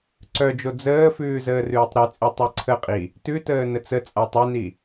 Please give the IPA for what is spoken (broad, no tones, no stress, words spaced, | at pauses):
ǀœd͡ʒo d͡zəːfʉː zəːrʉːtˤɾʉt͡sʼi tˤiǀʰəqʼi | tʉtəː nət͡sət͡sʼa tˤœni